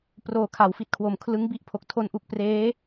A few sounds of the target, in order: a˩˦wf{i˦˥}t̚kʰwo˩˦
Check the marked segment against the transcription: incorrect: i˨˩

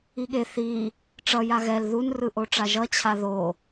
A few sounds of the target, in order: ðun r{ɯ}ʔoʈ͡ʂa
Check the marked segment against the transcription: correct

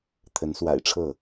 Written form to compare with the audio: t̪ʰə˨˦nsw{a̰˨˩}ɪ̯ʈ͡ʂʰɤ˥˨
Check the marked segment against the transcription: correct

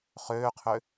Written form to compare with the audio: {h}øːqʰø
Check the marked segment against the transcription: incorrect: χ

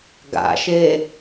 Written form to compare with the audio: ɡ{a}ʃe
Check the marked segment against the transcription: incorrect: a̰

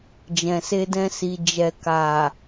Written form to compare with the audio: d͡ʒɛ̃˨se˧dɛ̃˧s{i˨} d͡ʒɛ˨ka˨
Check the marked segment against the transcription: correct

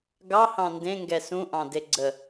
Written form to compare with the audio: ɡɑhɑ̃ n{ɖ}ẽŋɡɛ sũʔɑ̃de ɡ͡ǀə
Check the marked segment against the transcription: incorrect: d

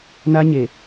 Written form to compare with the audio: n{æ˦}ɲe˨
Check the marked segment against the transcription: incorrect: a˦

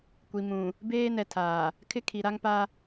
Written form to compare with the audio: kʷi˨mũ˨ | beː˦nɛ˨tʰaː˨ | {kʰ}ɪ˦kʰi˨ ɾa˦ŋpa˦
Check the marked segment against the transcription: correct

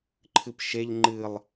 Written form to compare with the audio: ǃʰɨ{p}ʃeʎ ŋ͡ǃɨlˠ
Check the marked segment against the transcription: correct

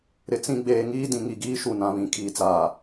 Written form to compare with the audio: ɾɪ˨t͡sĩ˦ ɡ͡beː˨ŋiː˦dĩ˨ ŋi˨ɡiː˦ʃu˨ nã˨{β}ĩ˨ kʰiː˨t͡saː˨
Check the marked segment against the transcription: correct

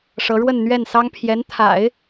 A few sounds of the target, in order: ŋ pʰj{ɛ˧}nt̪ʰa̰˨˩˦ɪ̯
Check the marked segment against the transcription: incorrect: ɛ˧˥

